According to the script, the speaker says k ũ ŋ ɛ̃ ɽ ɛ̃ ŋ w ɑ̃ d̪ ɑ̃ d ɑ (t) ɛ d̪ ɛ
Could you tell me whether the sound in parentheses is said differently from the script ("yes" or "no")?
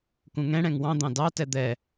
no